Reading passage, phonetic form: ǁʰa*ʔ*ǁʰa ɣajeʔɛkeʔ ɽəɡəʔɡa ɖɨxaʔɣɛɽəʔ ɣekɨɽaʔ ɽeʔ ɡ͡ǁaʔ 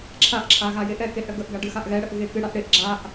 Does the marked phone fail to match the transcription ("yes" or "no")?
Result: no